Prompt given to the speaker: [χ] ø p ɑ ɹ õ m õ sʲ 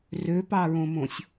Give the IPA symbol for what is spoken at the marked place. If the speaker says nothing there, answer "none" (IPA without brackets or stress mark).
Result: r